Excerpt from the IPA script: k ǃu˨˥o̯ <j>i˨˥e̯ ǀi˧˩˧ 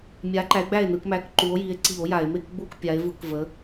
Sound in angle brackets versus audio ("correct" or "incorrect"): correct